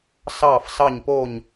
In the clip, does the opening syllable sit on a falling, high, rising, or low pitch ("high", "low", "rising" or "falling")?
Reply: falling